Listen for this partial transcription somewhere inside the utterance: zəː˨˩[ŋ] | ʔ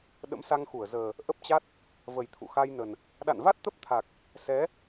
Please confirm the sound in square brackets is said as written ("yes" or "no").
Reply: no